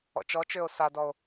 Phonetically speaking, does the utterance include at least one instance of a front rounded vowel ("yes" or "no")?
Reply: yes